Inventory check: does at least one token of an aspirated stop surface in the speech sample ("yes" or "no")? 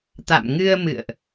no